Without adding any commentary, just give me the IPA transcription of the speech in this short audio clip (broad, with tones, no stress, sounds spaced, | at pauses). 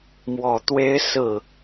m w ɔ˨˩ t̪ w e˥ ɪ̯ s ɹ̩˥˩